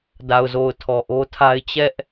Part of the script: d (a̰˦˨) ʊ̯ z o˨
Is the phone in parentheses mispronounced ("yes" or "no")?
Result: yes